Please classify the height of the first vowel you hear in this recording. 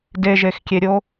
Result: mid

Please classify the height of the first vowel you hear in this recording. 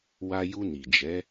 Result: low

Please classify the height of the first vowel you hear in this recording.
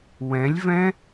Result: mid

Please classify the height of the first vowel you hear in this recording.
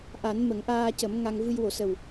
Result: low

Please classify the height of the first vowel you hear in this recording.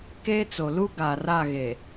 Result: mid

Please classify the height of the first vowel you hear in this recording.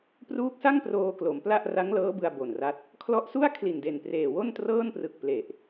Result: high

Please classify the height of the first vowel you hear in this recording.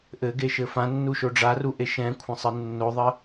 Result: mid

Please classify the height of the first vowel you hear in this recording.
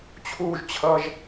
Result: high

